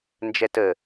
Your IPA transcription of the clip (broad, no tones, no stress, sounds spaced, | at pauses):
n d͡ʒ ɛ t ə